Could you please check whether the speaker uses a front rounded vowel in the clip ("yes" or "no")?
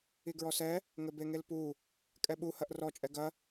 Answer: no